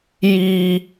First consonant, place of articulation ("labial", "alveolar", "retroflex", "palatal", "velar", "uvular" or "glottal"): palatal